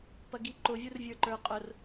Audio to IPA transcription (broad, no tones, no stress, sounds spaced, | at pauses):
p ɐ ɡ i ǃ ʊ vʲ u r vʲ ə˞ ǃ ə˞ qʼ ʊ r